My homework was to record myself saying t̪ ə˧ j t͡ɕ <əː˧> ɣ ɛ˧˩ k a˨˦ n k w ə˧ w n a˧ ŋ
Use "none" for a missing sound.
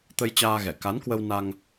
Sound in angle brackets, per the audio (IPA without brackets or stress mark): aː˧